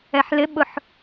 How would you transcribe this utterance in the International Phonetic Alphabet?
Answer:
ɛ ħ l ɪ ɓ ʊ ħ

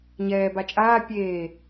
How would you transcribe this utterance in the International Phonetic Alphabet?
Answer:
ɲ ɛː b a t͡ʃʼ aː pʲ eː

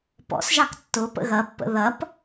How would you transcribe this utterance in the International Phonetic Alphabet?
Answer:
p ɔ̰ s ʒ ɑ k tː ʊ p ə̰ ɣ ɐ pː ə̰ ð ɐ p

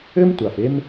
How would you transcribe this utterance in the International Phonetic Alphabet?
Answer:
ɘ˥ m tʷ a˨ f e˦ m

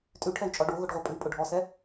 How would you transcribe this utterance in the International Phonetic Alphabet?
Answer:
tʼ ʉ ʈʰ ɛ y̯ t͡ʃʼ ɔ ɖ o ɣ ʊ ɖ ʁʷ ɛ pʼ ʉ pʼ ʊ ɖʱ ɔ s ɛ

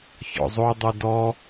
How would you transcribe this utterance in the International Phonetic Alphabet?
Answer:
ç ɔ̰ zˤ o dˤ ʉ d ɔ

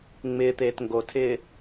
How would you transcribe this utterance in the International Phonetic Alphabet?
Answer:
ŋ͡m ɪː t̪ eː t ŋ ɡ o tʰ ɪː

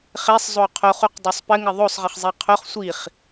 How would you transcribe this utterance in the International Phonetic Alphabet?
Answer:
χ e sˤ zˤ o qʰ o χ u q dˤ o sˤ p ɘ ŋ ɘ ðˤ o sˤ ʁ ɘ χ zˤ i qʰ o χ sʷ i χ

